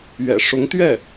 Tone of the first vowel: low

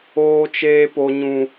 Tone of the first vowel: high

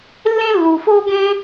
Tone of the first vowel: high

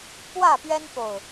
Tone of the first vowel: falling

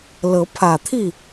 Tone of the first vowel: rising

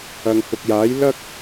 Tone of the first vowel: low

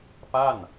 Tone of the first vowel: falling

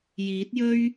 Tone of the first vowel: rising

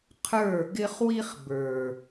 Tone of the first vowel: falling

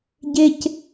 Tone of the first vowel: high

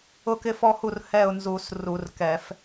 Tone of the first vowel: falling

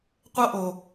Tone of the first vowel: high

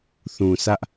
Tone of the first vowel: low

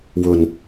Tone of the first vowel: low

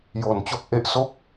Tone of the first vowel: low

